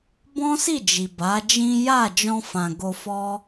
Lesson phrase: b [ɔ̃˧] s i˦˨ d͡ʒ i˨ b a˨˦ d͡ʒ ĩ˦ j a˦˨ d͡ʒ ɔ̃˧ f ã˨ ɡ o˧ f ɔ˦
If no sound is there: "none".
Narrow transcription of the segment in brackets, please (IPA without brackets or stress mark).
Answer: ɔ̃˦